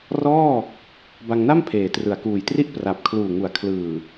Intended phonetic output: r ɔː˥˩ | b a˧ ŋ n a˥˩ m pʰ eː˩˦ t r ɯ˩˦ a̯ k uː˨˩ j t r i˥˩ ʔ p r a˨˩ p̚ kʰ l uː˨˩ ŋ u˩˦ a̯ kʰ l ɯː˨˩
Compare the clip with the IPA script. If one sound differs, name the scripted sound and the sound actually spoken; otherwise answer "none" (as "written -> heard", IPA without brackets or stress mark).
none